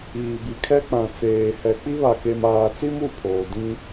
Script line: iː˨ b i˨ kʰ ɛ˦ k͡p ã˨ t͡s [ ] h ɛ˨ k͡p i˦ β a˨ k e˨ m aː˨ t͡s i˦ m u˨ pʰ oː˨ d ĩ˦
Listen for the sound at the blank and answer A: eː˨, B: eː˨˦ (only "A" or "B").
A